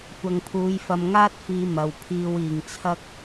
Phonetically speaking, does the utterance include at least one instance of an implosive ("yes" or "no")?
no